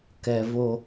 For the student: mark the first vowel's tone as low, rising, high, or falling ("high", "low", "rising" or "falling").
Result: high